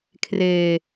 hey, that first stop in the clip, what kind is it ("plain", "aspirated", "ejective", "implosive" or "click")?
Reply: aspirated